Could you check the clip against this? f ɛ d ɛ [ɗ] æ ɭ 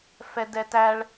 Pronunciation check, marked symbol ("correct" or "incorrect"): incorrect